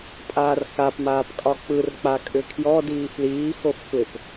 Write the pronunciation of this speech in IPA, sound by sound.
pʼ aː r x a p m aː p kʼ ɒ k͡p ɯ r k͡p a kʼ ʏ kʰ j ɔ d iː f l iː x o f sʷ e p

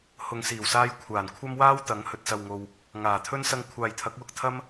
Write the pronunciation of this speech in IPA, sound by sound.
h ʊ˨ ŋ s iː˨˩ w s aː˧ j kʷʰ aː˨˩ n kʷʰ ɐ˥ m w aː˥ w t̪ ɐ˨˧ ŋ h ɵ˨ t̚ s ɐ˨ w ŋ o˨ w | ŋ aː˨˩ t̪ʰ ɵ˥ n s ɐ˧ ŋ kʷʰ aː˨ j t̪ʰ ɐ˨˥ k̚ w ʊ˧ k̚ t̪ʰ ɐ˥ m

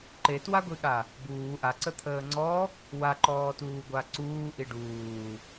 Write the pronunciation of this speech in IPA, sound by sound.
ǃ e t w a ɡʷ i ɠ a | b uː ʔ a ǀ ə t̪ʰ əː ŋ͡ǀ ɔ | w a ǃ ɔː t uː ɡʷ a ǀ uː ʔ i ɖ uː

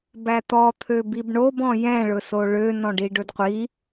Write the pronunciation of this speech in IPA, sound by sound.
b æ t̪ ɔ t̪ʰ ø b i b ɳ o b ɔ̃ j ɛ̃ ɭ ɵ s o ɭ ø n ɔ̃ ɖ i ɖ ɵ d qʷ i

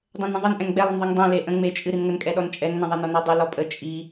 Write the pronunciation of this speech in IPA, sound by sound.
dˤ ɛ̃ n ə̃ ðˤ ə n ʔ ɛ̃ ŋ ɡ͡b ɛ lˠ ə n ðˤ i ŋ dˤ ɛ̃ l e ʔ ə̃ ŋ͡m e t͡ʃʼ ɨ ɾ ɨ n ŋ ə n kʼ ɛ ɗ ɔ n t͡ʃʼ ɛ ŋ n ə̃ ðˤ e n ɔ n ɔ dˤ ɨ l ɔ pʼ ə t͡ʃʼ i

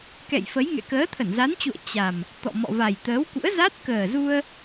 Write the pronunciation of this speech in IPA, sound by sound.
k ɛ̰˧˨ j f ə˨˦ j ŋ ɛ̰˧˨ k əː˨˦ t̪ʰ ə˧˩ n z a˨˦ n t͡ɕ ṵ˧˨ ə̯ t͡ɕ a˨˩ m | t̪ ɔ̰˧˨ m ɔ̰˧˨ v a˨˩ j t̪ əː˨˦ w k ṵ˧˥ ə̯ z a˦˥ t̚ k əː˨˩ z u˧ ə̯

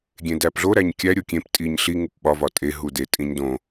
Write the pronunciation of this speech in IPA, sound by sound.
ɡʲ ẽ d æ p ɮ o ɾ æ ɲ kʲ æ ɾʲ o kʲ ẽ p tʼ i ɲ ɬ i ŋ u p ɓ ɒ v ɒ tʼ e ɦ u d e tʼ ĩ ɲ d õ

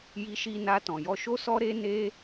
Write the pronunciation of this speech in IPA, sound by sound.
j i˧ ʃ i˧ n a˧ t ɔ̃˨ j ɔ˧ ʃ o˦ s ɔ˦ ɾ e˦ n e˦

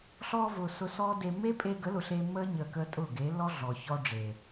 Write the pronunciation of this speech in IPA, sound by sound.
ɬ ɔː˧ v ʊː˨ s ʊ˧ s ɔː˦ d e˧ mː e˦ pʼ e˧ ɡ ə˨˦ l ʊ˨ ɬ eː˧ mː əː˦ ɲ əː˧ k əː˦ tʼ ʊː˦˨ ɡ e˨˦ lː ɔ˦ ɮ ɔ˨ ç ɔ˧ ɖ͡ʐ e˨

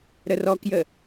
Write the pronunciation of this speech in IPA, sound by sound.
ɾ ə r ɔ k j ə

